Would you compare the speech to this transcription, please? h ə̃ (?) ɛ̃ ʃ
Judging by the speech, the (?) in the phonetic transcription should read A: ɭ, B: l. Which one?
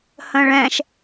A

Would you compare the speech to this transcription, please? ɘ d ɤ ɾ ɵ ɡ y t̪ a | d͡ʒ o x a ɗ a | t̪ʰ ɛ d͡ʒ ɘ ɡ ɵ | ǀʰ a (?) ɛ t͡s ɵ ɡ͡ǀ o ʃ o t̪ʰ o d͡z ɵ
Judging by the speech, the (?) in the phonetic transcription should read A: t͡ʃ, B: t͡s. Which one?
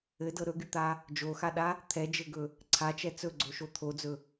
A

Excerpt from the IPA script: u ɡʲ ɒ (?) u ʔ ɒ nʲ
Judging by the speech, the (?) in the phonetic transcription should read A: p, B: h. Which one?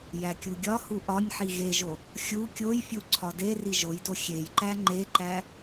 B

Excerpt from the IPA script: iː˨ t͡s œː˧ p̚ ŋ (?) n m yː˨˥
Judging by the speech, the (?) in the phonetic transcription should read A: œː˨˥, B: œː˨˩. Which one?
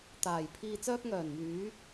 B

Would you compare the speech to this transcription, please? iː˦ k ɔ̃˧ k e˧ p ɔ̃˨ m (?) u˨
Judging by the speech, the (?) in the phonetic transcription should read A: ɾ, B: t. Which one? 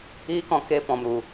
A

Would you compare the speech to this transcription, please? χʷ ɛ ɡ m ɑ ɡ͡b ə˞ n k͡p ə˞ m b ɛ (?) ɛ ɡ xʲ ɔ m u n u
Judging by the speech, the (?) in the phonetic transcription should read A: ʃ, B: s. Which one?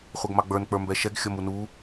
A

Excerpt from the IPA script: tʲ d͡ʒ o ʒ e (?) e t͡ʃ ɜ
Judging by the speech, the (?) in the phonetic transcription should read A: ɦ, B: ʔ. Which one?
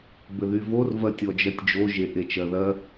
B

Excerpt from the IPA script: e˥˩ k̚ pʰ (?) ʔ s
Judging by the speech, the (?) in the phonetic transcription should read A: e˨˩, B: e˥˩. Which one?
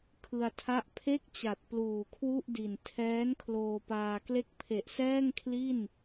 A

